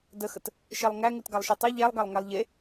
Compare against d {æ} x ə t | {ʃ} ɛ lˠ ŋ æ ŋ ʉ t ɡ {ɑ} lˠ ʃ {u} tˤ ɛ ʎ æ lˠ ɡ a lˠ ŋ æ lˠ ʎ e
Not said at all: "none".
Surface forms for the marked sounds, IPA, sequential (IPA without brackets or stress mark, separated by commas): ə, ʃ, a, ʉ